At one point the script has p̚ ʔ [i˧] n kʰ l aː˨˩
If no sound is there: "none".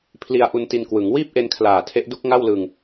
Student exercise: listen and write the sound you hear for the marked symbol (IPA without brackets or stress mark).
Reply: e˧